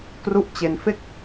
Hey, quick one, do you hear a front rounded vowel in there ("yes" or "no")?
no